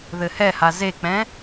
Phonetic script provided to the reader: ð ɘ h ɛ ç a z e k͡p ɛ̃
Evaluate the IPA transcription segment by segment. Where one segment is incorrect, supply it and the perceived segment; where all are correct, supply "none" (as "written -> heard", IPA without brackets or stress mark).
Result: ç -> h